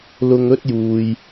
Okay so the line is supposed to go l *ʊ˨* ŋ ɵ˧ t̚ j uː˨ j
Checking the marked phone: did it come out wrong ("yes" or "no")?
no